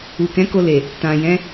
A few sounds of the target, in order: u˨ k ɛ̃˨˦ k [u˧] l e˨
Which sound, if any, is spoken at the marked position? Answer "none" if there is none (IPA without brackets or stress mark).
o˧